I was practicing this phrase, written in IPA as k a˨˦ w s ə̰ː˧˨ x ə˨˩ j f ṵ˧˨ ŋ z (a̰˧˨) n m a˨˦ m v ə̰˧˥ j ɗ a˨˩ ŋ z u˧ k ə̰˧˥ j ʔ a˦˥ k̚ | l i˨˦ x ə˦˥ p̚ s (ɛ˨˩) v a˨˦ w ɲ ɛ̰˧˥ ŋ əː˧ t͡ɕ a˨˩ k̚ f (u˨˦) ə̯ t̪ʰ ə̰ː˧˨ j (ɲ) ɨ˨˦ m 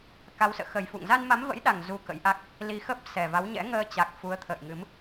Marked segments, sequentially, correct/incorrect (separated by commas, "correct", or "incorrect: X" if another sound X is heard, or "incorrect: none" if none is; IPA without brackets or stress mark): incorrect: a˧, correct, correct, incorrect: ŋ